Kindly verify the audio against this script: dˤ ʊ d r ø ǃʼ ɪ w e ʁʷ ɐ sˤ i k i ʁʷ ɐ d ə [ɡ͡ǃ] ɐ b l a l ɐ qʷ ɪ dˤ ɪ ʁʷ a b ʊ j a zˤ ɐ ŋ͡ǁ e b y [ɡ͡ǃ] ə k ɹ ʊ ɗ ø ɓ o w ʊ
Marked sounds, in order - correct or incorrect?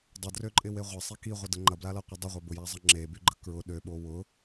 incorrect, correct

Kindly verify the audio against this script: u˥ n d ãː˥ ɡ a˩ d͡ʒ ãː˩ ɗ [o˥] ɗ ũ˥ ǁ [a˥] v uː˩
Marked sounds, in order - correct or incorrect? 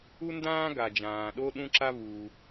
correct, correct

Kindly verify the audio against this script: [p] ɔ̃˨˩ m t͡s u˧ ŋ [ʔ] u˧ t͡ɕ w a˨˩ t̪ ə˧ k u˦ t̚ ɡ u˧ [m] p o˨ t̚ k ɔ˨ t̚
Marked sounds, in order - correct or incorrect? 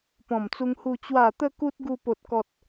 correct, incorrect, incorrect

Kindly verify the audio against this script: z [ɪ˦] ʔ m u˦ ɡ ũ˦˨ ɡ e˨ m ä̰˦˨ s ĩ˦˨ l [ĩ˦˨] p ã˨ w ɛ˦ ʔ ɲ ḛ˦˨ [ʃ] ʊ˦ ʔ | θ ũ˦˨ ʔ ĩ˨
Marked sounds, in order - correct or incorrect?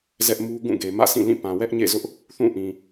incorrect, correct, incorrect

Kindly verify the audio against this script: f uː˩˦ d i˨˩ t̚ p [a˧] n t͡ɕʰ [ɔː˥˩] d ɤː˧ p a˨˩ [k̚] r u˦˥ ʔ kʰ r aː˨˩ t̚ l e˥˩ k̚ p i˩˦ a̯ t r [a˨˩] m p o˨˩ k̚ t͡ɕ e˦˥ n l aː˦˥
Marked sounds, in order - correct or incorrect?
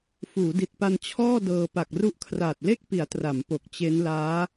correct, correct, correct, incorrect

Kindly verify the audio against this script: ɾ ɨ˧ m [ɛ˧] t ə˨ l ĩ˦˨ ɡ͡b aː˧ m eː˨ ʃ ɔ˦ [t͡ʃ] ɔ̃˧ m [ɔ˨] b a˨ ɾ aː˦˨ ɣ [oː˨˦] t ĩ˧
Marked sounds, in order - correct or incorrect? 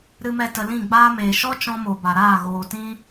correct, correct, incorrect, incorrect

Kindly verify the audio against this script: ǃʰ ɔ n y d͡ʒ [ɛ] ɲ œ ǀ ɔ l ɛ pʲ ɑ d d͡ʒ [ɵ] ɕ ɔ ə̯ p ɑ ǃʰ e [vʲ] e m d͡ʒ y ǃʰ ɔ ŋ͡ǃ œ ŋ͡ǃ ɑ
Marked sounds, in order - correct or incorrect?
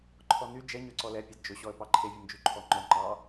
correct, correct, correct

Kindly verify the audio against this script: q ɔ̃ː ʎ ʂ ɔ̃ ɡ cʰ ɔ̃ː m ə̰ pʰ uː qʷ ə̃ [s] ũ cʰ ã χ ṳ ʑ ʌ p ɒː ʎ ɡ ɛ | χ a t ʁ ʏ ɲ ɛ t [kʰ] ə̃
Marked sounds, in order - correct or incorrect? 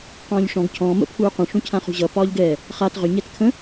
incorrect, correct

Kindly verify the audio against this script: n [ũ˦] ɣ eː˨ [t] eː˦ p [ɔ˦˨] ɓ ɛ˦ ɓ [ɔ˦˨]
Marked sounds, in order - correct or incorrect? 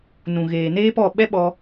incorrect, incorrect, correct, incorrect

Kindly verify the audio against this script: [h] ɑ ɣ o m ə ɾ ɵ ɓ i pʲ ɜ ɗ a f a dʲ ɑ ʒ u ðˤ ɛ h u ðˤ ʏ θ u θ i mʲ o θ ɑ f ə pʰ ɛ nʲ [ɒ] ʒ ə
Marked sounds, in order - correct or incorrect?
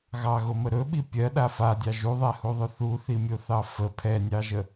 incorrect, incorrect

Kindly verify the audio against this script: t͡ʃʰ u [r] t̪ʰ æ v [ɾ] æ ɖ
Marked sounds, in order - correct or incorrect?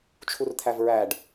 correct, incorrect

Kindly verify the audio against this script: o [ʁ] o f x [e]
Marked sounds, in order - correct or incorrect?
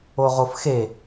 correct, correct

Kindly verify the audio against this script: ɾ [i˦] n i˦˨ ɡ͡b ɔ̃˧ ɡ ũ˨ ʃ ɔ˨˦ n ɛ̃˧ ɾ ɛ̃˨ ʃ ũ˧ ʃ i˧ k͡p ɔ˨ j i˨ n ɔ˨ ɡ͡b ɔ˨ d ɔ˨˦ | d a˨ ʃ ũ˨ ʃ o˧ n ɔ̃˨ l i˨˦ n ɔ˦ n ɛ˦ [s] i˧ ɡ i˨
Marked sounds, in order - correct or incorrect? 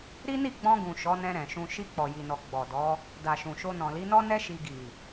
correct, incorrect

